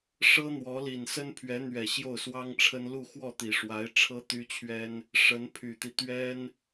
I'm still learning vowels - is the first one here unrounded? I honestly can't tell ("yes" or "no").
yes